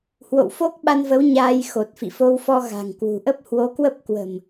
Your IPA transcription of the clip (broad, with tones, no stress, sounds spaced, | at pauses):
h w o̰˧˨ w f o˦˥ k̚ ɓ a˧ n v ə˨˦ w ɲ aː˧ j x o˨˩ t̚ f ḭ˧˨ f o˧ w f ɔ˧ ɣ a̤˨˩ ŋ k w ṳ˨˩ ʔ ə˦˥ p̚ h w o˨˦ k w ə˦˥ p̚ k w ə̤˨˩ m